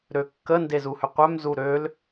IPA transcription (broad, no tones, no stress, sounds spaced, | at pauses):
ɾ ø kː ə n d e z u h ʏ qʷ œ m z u ɾ ø l